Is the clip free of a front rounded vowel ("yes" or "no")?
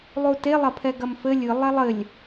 yes